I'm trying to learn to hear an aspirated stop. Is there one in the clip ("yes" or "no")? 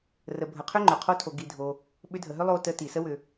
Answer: yes